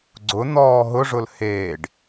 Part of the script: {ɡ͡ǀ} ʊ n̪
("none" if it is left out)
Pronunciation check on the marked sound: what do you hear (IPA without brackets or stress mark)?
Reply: ɡ͡ǀ